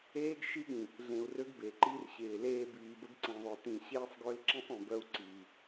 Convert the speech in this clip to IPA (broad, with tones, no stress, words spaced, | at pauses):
eː˦ɡʃi˦ɠĩ˨ | ɮẽ˨u̯rø˦ɡbe˨ǃi˦r ɕɪː˨leː˦ biː˨bə˦ɡ ǀĩ˨ðˤœ˨tĩ˨ ɕeː˦sˤɡø˦lǁĩ˦sˤœ̃˨ bœ˦u̯ǀiː˨